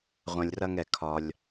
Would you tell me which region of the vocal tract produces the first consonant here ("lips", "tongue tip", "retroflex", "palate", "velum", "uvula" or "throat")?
uvula